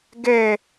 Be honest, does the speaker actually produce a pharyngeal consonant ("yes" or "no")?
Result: no